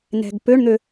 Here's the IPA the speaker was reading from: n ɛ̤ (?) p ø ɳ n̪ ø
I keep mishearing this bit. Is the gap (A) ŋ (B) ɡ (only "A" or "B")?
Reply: B